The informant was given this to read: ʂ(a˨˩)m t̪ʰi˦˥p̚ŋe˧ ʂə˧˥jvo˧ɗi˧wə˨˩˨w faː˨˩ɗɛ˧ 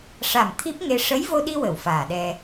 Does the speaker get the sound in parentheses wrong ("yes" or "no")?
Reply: no